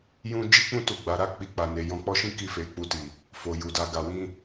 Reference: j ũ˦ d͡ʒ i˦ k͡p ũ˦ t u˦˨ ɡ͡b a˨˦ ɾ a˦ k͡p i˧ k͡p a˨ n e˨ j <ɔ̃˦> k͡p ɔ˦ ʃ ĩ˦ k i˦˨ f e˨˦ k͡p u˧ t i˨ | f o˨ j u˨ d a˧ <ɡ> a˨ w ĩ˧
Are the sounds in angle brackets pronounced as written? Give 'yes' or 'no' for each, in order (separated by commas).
no, yes